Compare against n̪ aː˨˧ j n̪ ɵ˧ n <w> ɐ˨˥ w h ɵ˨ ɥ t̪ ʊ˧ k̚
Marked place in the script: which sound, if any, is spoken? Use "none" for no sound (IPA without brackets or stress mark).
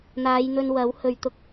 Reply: w